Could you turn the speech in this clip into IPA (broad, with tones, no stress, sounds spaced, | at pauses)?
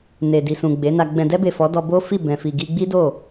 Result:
n e˨ d i˨ s ũ˨ ɡ͡b e˨˦ n a˧ ɡ͡b ɛ̃˨ d ɛ˧ b e˨ f ɔ˨˦ d ɔ˧ b o˦ f i˦˨ b ɛ̃˨ f i˨ ɡ i˧ ɡ͡b i˦ d o˦˨